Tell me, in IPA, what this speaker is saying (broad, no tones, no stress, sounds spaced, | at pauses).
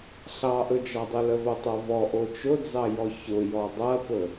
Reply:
ɬ ɑ ʔ ɵ d͡ʒ ɑ dˤ ɵ l ə v o tˤ o v ɔ ʔ o t͡ʃ ʊ d͡z ɑ j ɔ ç ʊ j ɔ dˤ ɐ p ɵ